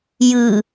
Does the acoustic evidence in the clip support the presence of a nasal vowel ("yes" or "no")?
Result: no